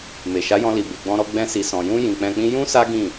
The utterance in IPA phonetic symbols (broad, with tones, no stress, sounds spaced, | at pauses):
m e˨ ʃ a˨˦ j ɔ̃˧ l i˨ b e˨ ɡ͡b ɔ̃˧ ɾ ɔ˧ ɡ͡b ɛ̃˧ s i˨ s ɔ̃˨ j ũ˧ j ĩ˨ k͡p ɛ̃˧ k͡p ĩ˦ j ũ˦ s a˦ ɡ ĩ˦˨